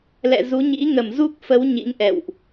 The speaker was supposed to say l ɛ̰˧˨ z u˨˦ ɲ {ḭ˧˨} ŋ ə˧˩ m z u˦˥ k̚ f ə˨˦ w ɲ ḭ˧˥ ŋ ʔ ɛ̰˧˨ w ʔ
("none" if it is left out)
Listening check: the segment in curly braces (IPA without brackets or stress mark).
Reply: ḭ˧˥